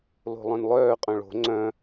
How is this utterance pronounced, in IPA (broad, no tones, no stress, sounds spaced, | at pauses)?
l o̤ lˠ œ̃ n lˠ œː qʼ œ̃ ɭ o̤ ŋ͡ǀ œ̃